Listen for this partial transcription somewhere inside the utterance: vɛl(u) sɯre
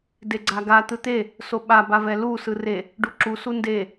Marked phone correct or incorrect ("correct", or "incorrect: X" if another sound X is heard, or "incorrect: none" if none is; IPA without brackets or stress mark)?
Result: correct